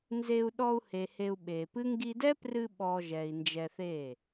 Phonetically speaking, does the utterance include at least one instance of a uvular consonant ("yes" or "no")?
no